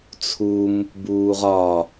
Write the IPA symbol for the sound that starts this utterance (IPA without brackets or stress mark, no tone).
t͡sʰ